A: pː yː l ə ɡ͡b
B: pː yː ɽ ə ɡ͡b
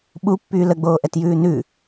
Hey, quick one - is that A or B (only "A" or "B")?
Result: A